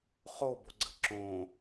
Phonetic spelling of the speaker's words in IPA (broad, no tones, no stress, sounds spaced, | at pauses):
χ o b o ɡ͡ǀ ə̤ ǁ õ